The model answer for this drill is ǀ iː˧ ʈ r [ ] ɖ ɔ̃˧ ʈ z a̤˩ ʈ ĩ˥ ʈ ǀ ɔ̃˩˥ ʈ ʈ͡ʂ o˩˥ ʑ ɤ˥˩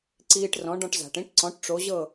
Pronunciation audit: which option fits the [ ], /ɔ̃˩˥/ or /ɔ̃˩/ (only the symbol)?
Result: ɔ̃˩˥